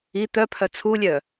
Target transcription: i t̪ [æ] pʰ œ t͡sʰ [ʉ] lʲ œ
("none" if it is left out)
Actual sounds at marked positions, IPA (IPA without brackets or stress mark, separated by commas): œ, u